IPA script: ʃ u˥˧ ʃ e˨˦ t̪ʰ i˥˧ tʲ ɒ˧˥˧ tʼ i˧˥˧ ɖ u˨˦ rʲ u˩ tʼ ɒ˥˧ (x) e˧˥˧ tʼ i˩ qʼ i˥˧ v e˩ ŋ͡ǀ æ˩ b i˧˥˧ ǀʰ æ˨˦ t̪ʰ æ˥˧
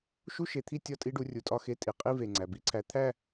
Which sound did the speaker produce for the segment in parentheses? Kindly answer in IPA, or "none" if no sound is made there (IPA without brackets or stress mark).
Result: x